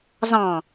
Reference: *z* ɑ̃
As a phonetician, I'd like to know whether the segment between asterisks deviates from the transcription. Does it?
no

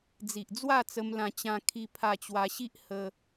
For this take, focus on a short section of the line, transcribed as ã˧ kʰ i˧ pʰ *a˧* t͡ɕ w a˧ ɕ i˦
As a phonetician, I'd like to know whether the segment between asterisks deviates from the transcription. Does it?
no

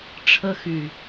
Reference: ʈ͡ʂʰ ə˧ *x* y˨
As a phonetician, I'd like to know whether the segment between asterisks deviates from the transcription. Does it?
no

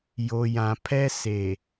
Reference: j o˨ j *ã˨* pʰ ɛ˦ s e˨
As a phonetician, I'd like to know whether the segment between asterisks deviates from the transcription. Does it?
no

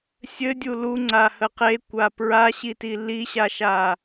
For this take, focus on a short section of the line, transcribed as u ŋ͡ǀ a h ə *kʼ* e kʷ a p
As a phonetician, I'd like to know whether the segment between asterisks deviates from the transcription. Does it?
yes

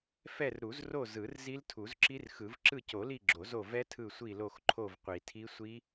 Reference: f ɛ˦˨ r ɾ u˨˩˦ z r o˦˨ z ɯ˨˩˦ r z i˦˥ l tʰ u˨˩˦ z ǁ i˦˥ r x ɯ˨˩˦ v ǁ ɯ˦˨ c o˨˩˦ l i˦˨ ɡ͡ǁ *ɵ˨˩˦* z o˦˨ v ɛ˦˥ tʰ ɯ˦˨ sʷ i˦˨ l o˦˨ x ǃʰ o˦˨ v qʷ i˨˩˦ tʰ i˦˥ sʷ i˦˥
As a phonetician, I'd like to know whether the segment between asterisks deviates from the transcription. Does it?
yes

